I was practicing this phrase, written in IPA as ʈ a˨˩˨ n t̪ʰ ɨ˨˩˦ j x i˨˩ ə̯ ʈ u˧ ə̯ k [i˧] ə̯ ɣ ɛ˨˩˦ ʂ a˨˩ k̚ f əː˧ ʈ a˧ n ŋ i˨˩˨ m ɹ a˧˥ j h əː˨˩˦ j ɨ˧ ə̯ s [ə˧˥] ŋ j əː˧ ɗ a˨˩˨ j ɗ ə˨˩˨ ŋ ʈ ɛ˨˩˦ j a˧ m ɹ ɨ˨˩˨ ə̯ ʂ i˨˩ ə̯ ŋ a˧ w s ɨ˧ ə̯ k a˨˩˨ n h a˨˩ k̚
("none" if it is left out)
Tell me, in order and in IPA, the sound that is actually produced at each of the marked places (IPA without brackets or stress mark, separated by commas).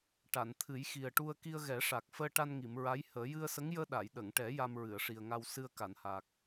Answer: i˧, ə˧˥